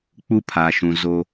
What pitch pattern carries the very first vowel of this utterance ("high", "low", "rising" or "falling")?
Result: high